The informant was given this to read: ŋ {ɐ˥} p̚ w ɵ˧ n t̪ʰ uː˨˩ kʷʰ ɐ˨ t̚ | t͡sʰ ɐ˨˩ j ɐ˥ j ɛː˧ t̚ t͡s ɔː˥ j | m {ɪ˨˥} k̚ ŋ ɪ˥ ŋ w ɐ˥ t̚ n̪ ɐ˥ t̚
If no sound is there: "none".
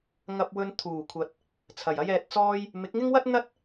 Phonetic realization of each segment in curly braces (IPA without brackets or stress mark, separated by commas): ɐ˧, ɪ˨˥